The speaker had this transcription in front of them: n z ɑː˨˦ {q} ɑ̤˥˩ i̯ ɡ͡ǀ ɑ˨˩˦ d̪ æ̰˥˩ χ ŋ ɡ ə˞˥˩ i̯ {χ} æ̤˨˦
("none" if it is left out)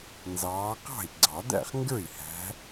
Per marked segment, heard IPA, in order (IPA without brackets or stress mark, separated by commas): q, h